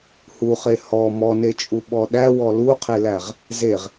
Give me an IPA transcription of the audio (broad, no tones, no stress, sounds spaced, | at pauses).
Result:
h u χ e h ɔ m ɔ n e t͡ʃʼ u ɓ ɔ ɗ æ w ɔ l u qʰ e l æ ʁ | z e ʁ